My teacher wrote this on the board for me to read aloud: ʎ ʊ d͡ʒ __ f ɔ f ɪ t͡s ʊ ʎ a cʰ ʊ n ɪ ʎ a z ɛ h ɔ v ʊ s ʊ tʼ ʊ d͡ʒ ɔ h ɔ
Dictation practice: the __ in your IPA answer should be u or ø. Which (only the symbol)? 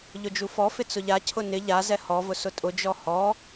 u